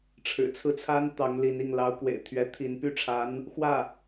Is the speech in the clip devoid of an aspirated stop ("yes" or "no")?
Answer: no